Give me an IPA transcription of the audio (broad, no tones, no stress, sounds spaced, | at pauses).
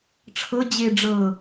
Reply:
ʈ͡ʂʰ ɤ d͡ʑ e ɖ͡ʐ ɤ